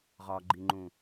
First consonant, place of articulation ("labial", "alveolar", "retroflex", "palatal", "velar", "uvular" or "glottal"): uvular